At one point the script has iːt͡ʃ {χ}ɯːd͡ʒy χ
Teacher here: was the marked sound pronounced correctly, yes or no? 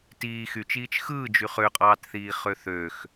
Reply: no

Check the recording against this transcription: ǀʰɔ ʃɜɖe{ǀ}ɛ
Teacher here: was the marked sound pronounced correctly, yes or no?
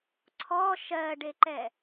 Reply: no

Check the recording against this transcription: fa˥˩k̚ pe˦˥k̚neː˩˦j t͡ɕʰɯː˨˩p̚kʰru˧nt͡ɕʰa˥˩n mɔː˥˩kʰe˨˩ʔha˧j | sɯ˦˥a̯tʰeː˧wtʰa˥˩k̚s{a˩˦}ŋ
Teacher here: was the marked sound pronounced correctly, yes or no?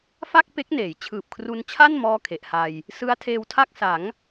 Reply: yes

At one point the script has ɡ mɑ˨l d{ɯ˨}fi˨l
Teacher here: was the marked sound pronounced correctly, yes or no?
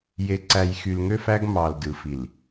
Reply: yes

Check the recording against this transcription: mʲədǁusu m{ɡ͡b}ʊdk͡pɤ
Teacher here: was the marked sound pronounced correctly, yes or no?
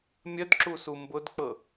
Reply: no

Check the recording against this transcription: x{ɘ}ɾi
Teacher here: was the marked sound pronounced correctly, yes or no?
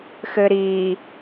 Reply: yes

